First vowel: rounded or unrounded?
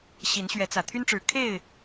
unrounded